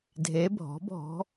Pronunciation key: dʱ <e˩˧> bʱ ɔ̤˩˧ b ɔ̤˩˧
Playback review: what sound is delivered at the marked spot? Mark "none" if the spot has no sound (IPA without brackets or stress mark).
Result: e˩˧